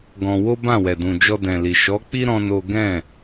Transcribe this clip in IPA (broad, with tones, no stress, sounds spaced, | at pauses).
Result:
ɡ ɔ̃˧ w o˦ b ã˦˨ w ɛ˨ d ũ˨ d͡ʒ ɔ˧ d ɛ̃˨ l i˨ ʃ ɔ˨˦ k͡p i˦ ɾ ɔ̃˦ n o˦ ɡ ɛ̃˦˨